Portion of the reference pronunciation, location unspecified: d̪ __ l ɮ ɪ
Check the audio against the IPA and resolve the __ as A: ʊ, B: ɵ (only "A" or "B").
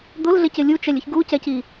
A